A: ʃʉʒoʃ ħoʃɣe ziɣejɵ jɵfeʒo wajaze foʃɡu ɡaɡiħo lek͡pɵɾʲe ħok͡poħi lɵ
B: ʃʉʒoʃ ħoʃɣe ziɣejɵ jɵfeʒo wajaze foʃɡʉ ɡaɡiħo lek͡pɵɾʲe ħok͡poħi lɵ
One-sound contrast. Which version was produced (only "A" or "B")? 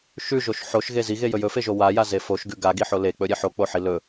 B